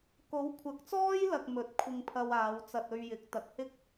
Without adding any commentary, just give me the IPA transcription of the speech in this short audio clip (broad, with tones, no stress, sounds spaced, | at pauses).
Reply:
k o˨˥ w kʷʰ ɐ˨˥ k̚ t͡s ɔː˥ j l ɐ˨ k̚ m ɵ˨˥ t̚ kʷʰ ɪ˧ ŋ pʰ ɐ˧ w aː˨˧ w t͡s ɐ˧ t̚ ɵ˧ ɥ j ɪ˨˥ k̚ t̪ ɐ˨˥ k̚ h ɪ˥ k̚